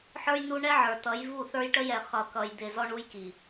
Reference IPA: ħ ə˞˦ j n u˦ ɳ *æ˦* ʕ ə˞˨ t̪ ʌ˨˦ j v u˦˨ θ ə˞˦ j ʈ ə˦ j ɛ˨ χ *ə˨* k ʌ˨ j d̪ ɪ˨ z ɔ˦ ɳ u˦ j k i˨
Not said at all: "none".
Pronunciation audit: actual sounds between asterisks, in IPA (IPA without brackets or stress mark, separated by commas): ɛ˦, ʌ˨